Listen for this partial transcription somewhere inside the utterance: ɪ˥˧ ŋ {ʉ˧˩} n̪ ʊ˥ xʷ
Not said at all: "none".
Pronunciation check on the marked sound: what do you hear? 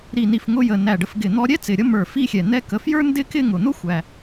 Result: ʊ˧˩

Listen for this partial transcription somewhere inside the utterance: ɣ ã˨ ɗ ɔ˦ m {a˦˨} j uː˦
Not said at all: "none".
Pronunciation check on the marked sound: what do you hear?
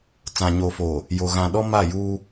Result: a˦˨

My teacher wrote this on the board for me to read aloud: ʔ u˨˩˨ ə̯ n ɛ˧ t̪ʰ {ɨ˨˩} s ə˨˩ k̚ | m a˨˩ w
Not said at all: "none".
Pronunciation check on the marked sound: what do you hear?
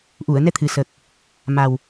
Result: ɨ˨˩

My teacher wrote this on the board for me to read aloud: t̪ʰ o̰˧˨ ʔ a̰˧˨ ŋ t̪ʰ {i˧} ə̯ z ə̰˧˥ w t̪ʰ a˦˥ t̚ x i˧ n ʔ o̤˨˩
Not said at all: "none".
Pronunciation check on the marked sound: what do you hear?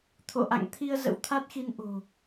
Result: i˧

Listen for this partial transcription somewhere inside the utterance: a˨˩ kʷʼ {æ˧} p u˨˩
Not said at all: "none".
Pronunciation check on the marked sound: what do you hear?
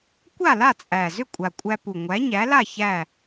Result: æ˧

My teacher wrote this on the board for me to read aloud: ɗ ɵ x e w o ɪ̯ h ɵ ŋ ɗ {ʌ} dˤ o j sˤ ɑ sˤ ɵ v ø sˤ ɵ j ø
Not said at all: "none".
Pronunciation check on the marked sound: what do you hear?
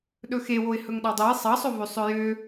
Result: ɑ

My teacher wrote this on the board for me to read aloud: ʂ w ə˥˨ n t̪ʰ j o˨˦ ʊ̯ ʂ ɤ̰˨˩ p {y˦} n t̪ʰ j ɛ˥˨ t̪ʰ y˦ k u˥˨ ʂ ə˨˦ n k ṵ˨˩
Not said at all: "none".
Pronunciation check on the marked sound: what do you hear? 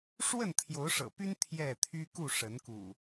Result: y˦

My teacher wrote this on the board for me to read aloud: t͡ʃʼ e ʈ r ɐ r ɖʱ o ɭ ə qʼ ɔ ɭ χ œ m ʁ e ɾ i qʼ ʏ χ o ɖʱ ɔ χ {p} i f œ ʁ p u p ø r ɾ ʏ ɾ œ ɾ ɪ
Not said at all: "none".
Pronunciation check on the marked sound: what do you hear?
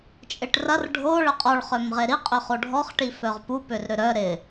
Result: ʈ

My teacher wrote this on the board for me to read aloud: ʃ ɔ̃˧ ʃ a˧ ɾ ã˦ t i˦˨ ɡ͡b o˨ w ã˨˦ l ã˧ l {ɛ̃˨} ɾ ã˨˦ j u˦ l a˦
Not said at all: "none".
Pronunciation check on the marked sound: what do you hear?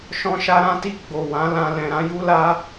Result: ɛ̃˨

